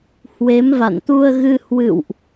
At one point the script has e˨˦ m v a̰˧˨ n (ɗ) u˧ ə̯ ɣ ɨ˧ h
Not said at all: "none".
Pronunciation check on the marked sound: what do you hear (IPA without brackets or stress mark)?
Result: t̪